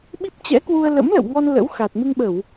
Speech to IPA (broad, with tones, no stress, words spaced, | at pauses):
ɓi˦˥p̚t͡ɕɛ̰˧˥kwu˧ə̯ lə̰˧˥mlə̰˧˨wŋɔ˧n lə̰˧˥wxa˨˩t̚ mɨ˧ŋɓə˧˩˨w